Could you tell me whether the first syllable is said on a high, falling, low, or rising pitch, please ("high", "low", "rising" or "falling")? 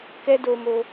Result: high